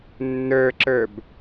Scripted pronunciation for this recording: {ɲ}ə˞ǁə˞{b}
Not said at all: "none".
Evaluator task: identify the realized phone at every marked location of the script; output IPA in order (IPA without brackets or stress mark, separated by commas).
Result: nː, b